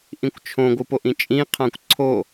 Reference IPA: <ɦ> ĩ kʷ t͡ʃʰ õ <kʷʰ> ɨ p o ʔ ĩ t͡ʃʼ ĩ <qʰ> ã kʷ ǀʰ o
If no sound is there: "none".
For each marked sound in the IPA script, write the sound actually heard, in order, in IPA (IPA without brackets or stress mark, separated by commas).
ʔ, ɡʷ, qʰ